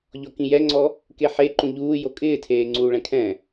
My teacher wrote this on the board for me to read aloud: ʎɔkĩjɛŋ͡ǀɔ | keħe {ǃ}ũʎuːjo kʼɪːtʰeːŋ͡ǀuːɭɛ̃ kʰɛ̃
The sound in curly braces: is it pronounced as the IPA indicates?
yes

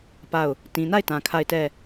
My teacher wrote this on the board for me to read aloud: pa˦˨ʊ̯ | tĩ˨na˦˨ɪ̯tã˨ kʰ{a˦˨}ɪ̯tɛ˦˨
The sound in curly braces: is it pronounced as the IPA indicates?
yes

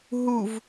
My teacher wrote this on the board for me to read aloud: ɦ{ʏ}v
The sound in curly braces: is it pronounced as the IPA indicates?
no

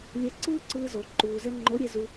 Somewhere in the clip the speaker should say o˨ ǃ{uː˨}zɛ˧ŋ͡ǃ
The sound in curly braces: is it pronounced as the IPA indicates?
yes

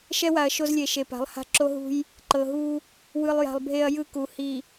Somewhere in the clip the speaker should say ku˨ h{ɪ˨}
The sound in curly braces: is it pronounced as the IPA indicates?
no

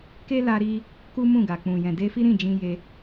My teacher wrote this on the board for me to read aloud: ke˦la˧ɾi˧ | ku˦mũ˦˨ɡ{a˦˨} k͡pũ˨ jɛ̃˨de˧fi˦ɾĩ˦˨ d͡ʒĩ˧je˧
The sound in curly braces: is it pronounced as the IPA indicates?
no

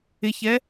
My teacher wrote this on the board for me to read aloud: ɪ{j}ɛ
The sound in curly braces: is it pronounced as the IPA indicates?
no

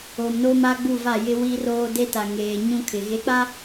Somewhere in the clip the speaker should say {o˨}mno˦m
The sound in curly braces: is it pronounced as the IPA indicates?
yes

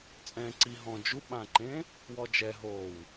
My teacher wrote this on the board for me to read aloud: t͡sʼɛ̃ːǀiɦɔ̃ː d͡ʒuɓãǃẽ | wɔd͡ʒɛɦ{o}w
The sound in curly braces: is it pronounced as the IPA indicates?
no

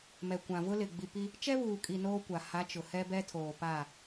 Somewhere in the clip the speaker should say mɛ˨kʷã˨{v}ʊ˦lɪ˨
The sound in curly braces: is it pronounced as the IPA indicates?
yes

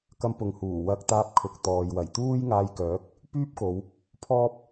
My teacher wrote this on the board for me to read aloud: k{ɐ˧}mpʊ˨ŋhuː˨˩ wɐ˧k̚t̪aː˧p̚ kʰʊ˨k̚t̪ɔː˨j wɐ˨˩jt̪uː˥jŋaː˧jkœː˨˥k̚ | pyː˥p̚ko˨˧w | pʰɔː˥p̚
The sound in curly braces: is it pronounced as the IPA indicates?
yes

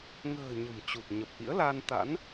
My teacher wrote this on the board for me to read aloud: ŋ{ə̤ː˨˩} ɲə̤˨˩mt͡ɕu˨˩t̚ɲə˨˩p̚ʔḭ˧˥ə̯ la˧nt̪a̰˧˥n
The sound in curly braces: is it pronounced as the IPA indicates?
yes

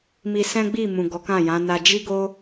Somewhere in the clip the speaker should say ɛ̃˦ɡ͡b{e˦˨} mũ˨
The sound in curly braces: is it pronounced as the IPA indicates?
no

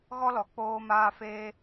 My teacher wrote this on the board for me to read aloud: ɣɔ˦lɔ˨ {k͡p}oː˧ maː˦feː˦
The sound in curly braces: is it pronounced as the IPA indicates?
yes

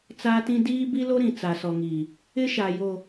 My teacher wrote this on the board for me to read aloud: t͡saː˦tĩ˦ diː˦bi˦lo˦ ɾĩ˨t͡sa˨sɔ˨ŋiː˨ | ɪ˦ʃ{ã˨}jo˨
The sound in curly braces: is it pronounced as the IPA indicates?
no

